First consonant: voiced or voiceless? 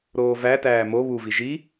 voiced